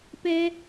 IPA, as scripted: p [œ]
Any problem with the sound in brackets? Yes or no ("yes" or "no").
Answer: yes